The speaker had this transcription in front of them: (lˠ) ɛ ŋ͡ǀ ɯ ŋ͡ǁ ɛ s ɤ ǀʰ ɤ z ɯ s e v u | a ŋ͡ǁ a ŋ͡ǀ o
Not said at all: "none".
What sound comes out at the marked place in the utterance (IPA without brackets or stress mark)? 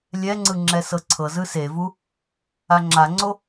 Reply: lʲ